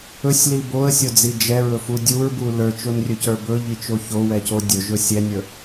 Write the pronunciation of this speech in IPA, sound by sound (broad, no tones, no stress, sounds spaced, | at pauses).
ɵ sʲ l i b o ə̯ sʲ o d͡z i d͡ʒ ɛ ɹ ɵ f u dʲ u ɹ b u l ə˞ t͡ʃ o n rʲ ɵ c ə˞ b ɵ ʎ i t͡ʃ o ç o w ɛ c o dʲ ɵ ʒ ɵ sʲ ɛ nʲ ə˞